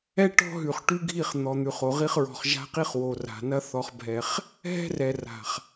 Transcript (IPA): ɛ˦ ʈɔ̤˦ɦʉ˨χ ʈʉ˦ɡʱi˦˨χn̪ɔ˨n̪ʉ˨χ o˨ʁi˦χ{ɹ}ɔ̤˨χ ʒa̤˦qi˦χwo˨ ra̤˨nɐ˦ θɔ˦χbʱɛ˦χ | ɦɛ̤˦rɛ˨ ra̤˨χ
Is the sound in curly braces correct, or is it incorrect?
correct